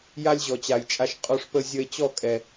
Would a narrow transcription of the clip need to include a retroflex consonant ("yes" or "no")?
yes